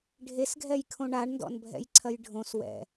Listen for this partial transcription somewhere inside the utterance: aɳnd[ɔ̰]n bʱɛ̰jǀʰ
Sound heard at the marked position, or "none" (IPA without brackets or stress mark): ɔ̰